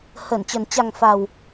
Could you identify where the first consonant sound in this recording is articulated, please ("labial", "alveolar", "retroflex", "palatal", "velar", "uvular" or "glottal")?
glottal